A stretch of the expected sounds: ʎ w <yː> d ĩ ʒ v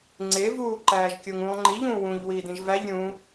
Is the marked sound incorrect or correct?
incorrect